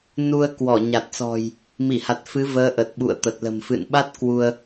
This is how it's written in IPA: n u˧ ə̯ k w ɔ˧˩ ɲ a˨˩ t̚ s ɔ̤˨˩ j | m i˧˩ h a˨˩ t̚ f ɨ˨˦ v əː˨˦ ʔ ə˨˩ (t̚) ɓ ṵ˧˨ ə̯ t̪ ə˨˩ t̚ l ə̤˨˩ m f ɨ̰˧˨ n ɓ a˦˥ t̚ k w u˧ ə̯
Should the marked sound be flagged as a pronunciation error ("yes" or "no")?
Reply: no